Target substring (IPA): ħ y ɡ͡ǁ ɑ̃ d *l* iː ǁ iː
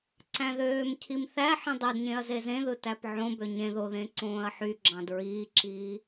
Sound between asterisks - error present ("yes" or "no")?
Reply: yes